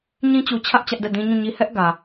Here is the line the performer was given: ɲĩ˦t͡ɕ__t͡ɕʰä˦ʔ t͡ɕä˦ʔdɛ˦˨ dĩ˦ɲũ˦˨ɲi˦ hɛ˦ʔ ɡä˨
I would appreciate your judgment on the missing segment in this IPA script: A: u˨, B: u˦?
A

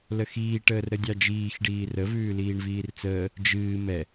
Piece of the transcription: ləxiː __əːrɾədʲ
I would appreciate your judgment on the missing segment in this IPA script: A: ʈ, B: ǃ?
A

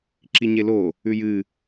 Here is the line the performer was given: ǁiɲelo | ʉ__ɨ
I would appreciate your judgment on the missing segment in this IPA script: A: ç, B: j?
B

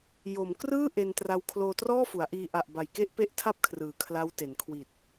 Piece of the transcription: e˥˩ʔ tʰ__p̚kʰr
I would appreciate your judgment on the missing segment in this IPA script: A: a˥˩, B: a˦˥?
A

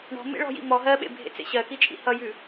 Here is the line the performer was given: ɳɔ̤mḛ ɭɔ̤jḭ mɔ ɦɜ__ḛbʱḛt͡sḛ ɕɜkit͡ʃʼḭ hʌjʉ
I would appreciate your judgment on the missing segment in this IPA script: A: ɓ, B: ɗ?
A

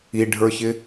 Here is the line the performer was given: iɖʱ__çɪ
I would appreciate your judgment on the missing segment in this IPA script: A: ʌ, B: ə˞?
B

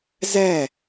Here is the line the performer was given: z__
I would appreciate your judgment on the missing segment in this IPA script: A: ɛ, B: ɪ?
A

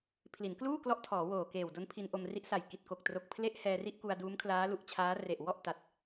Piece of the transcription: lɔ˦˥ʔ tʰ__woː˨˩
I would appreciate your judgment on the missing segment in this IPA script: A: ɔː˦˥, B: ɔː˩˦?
B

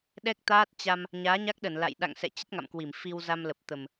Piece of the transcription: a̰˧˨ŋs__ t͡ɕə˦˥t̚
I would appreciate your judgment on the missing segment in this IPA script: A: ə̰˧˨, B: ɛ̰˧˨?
B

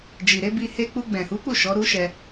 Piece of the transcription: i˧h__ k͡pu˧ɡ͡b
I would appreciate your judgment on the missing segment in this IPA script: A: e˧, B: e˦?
B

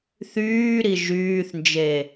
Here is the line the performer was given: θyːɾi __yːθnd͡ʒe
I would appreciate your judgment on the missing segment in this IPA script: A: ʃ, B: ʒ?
B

